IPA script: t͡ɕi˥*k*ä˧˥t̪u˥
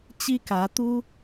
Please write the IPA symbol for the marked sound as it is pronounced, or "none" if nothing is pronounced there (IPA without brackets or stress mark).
k